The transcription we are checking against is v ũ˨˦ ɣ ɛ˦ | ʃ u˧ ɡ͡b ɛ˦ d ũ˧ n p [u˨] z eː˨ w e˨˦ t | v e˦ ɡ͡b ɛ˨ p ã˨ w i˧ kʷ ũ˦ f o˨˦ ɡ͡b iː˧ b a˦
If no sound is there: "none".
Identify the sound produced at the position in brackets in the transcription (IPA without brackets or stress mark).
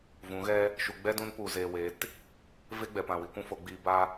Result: u˨